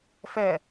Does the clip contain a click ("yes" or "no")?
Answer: no